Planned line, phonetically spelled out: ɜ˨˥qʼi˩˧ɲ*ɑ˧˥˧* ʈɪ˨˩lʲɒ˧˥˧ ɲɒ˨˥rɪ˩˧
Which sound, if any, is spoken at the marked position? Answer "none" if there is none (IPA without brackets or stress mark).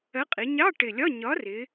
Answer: ɑ˧˥˧